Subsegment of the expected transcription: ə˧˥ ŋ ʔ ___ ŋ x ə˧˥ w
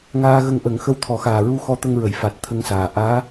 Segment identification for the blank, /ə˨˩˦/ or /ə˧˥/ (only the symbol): ə˨˩˦